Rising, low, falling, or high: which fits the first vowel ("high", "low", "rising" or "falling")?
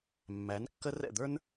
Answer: rising